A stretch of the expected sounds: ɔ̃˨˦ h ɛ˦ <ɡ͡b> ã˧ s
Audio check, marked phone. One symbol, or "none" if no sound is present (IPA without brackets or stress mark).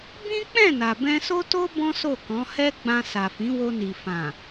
ɡ͡b